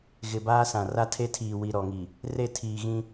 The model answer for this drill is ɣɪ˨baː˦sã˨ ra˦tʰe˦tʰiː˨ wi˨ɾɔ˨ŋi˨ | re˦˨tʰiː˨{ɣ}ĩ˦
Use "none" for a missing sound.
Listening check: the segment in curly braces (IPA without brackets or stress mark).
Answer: ɣ